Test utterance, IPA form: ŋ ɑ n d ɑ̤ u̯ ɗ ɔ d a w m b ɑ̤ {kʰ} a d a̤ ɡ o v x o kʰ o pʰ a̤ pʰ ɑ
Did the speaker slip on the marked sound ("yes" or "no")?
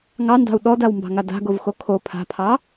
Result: yes